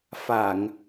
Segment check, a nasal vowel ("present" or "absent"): absent